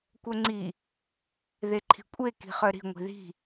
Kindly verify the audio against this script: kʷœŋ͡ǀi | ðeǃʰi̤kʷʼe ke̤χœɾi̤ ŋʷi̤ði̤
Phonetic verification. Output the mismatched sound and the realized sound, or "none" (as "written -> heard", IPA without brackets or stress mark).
e̤ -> i̤